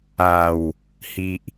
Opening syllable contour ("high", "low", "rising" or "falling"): low